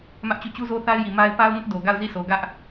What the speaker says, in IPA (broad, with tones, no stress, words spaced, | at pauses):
mä˦ʔt͡ɕu˦˨ t͡ɕu˦zo˦θa˦ɪ̯ji˨ ma˦ɪ̯ pa˦ʊ̯ŋʊ˦ʔ do˨ɡa˦˨ʊ̯ zi˦˨so˨ ɡä˦ʔ